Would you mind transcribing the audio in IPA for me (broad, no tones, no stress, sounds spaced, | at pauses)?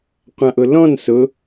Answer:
qʷ ã ʔ ʊ l ɔ̃ n s ʊ